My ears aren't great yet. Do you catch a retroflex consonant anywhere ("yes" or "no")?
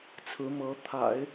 no